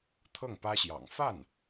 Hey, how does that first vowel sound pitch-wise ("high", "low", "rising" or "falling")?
falling